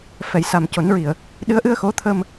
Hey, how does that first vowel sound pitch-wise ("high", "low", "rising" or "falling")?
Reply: low